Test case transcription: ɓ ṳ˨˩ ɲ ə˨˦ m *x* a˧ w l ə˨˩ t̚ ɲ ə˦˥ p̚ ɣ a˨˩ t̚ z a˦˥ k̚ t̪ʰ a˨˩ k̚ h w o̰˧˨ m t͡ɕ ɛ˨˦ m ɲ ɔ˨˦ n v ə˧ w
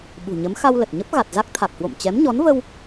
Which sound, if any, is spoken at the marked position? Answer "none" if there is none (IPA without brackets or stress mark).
x